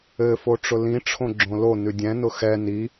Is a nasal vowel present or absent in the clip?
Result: present